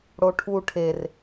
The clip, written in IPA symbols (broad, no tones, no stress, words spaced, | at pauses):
ɽoʈʰu ʈʰer